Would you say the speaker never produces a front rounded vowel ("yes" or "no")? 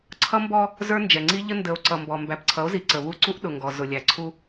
yes